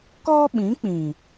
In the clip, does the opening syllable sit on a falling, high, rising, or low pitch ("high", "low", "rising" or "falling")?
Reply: high